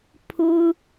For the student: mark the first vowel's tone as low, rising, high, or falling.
high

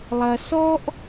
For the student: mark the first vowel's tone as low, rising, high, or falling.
low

